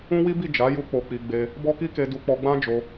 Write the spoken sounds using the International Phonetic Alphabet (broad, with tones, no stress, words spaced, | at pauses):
ũ˦wi˦bi˦˨ d͡ʒa˨˦ju˧ k͡po˧k͡pi˧ ɡ͡be˧ | bɔ˦ki˦ ke˧du˧k͡pɔ˧ ɡ͡bã˦d͡ʒo˧